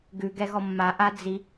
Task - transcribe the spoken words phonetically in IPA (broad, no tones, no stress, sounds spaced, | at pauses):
ɡ ʉ ɡ ɛ ɣ ɔ mː a ʔ a d͡z i